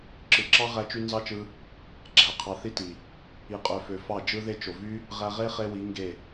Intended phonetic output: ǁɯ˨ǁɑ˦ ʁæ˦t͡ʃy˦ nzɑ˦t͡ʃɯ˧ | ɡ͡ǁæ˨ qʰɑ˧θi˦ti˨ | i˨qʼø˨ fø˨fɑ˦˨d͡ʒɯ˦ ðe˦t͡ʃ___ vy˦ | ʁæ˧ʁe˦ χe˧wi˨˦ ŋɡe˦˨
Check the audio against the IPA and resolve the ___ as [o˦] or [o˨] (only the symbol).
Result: o˨